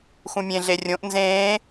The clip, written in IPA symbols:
xũmʲẽɮe rʲõʔ nzẽː

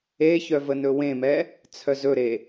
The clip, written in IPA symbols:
eçœ vənɵwẽmɛ | t͡sʰœzɵɾe

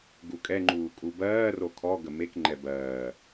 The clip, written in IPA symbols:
ɡukʼɛŋ͡ǃuː kʼubɜːro kʰɔ ɡəmekŋ͡ǃɛ bɜː

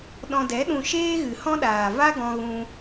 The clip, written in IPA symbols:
ɗɔ̃˧dɛ˨˦ɗũ˧ ʃeː˦ɣɨ˨hɔ̃˦ɗaː˨ va˦ɡɔ̃˧ɣũ˧

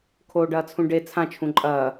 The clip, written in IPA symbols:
kʰoːɖɐːt͡sʰũɖe t͡sʰã t͡ʃʰũǃʼɐː

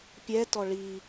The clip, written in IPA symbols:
pʲɛtɔ ɭi

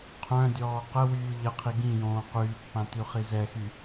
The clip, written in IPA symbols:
qʰœ̃dʲɔː qəwyː ʎəqʰi ɡĩjõː qyːpːã tyχizɛxy

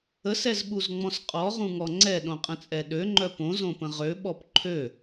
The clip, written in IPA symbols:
əsɛzɓuzŋ͡mɔ̃s qʼɔʁũŋɔ ŋ͡ǀɛɗõqʼə̃t͡sʼɛ ɗøŋ͡ǃœ põzõpə̃ ʁøɓɔp ǃʰø

